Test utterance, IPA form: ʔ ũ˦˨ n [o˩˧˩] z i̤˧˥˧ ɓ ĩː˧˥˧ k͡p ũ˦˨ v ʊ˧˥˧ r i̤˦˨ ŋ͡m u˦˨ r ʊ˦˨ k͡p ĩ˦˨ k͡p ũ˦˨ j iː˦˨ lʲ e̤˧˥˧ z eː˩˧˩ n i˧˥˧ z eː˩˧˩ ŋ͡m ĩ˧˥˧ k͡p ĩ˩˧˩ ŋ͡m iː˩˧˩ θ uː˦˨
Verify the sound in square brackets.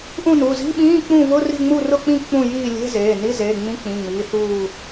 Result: incorrect: u˩˧˩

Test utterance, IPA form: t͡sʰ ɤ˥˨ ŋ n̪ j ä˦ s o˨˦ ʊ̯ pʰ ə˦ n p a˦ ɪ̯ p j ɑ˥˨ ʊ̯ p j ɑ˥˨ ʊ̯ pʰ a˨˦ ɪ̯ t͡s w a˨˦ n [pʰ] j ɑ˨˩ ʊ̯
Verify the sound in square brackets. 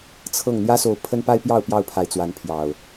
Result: correct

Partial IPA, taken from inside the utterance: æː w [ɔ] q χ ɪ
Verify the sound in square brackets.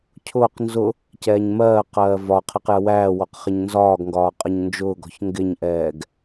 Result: correct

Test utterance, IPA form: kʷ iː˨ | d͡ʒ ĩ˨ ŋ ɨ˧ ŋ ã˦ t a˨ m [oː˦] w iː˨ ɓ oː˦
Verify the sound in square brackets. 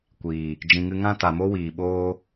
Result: incorrect: o˦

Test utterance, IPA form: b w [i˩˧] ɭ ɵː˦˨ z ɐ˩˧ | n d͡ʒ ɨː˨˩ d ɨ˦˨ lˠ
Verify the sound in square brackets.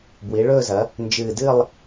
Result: correct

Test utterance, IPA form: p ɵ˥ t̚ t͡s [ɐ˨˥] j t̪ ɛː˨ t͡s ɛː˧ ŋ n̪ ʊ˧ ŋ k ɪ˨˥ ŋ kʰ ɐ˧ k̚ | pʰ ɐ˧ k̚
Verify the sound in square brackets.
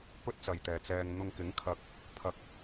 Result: incorrect: ɐ˨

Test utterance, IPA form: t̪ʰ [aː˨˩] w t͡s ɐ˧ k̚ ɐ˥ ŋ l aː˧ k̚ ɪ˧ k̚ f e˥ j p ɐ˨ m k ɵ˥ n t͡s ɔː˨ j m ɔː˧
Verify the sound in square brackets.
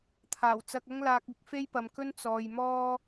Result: correct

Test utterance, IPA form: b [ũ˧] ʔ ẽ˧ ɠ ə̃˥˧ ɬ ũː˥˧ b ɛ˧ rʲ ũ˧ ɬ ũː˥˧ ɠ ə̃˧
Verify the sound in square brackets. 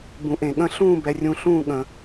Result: correct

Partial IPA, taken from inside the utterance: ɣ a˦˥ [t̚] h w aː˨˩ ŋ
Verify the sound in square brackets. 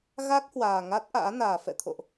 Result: incorrect: k̚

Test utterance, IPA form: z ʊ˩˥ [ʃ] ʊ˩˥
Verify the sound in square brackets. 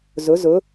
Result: incorrect: z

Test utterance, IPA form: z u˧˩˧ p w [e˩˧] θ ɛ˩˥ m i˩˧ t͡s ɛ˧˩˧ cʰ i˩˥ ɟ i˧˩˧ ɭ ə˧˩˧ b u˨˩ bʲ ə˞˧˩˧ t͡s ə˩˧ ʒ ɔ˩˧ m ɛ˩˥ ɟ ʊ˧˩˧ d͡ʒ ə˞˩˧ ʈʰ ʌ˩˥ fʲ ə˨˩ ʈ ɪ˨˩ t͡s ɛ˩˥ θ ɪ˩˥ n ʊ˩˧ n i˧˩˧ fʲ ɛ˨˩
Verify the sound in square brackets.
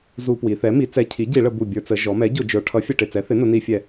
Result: incorrect: i˩˧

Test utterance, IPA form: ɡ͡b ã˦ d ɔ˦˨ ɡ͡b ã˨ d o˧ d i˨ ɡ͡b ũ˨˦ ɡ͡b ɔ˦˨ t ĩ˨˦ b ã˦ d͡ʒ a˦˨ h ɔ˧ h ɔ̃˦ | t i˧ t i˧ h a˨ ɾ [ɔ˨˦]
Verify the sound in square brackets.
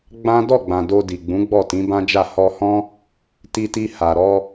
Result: incorrect: ɔ˧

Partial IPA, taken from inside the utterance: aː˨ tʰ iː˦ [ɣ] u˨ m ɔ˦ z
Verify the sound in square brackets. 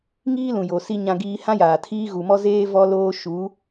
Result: correct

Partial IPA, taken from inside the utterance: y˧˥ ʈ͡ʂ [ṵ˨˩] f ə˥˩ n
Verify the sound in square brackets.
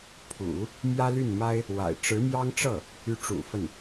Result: correct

